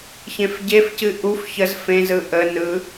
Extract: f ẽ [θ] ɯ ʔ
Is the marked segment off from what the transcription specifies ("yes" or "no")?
yes